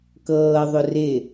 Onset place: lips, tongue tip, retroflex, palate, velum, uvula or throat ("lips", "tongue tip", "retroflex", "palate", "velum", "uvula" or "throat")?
velum